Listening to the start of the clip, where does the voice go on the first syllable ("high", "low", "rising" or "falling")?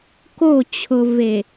falling